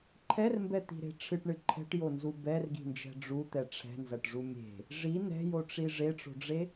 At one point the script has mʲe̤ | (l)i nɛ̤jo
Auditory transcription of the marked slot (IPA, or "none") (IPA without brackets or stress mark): ʐ